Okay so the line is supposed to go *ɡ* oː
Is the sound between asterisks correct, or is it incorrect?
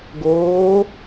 correct